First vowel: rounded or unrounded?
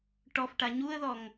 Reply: rounded